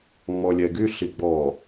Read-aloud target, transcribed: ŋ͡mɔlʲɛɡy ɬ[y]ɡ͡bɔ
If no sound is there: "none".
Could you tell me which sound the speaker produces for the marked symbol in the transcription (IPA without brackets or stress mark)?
i